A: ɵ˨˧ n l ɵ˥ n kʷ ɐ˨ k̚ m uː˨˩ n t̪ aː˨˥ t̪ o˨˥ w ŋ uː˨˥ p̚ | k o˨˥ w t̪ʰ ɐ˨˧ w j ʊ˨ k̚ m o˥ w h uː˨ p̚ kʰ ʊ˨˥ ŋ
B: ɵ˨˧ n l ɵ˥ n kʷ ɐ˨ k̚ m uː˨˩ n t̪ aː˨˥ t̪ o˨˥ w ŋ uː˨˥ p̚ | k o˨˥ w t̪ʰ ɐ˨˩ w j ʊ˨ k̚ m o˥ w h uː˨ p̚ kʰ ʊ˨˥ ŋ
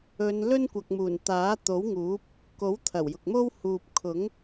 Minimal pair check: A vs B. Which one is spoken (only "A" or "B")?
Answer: B